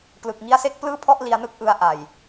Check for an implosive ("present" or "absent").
absent